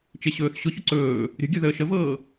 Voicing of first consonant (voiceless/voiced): voiceless